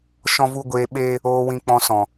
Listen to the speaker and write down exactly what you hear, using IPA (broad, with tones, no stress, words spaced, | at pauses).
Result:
ʃɔ̃˦vu˦ ɡʷeː˧ɓeː˦ | oː˧wĩ˧k͡pɔ̃˧sɔ̃˨